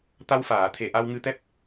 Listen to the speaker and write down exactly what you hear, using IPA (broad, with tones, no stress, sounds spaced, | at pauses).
t̪ a˧ w f aː˨˩˨ t̪ʰ e˨˩ ʔ a˧ w ŋ ɨ˧ t̪ ɛ˦˥ p̚